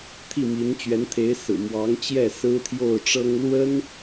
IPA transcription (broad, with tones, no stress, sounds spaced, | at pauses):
t̪ʰ i˥˩ m i˧˥ n t͡ɕ ɥ ɛ˧˥ n t̪ʰ e˧˥ ɪ̯ s ɹ̩˨˩ m w ɑ˧˥ ŋ t͡ɕ j ɛ˥˩ s ɹ̩˥ t̪ʰ j o˥˩ ʊ̯ ʈ͡ʂ ɤ˥ ŋ l w ə˥ n